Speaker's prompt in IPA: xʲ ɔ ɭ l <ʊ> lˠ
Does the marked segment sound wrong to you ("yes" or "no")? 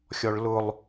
no